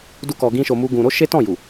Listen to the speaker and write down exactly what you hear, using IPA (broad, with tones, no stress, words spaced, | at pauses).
du˦kɔ˧ ɡĩ˦ʃo˧mu˦ɡũ˧ ɾo˦ʃe˦tɔ̃˦˨ ju˨